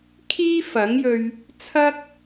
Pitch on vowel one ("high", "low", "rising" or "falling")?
high